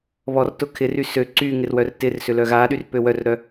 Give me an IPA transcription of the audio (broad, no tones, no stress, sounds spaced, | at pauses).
β ɔ r t ʊ kʰ ɪ r y s ø ǀ y ŋ ɪ r w œ r t ɪ r s ʏ l œ ɣ a ɗ y r p ø w œ r ɾ œ